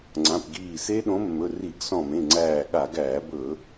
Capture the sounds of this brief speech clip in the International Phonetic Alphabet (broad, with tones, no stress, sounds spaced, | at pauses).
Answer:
ŋ͡ǀ ã˩˧˩ p ɡ iː˧˩ s e˦˥ ɗ õ˨˥ mː ɵ˩˧˩ r i˧˩˧ ɡ s ɔ̃˧˩ m ẽ˩˧˩ ŋ͡ǀ æː˧˩ ɠ a˧˩˧ ɡ æː˧˩˧ b ɵ˧˩˧